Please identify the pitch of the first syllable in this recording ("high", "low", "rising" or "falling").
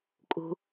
low